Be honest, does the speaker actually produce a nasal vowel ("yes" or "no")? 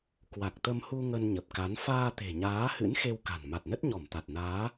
no